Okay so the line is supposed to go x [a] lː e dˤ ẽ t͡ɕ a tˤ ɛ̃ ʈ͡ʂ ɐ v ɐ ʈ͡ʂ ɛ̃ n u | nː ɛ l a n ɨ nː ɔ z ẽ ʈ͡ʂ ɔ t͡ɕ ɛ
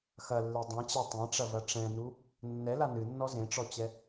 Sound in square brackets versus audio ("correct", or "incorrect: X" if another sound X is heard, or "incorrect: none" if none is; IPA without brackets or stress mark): incorrect: ɐ